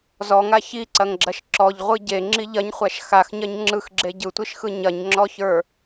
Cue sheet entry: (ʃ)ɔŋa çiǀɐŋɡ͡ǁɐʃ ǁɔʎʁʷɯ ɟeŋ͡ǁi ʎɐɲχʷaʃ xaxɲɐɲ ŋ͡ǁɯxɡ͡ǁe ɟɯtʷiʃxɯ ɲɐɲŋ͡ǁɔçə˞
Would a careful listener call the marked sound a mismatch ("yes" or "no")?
yes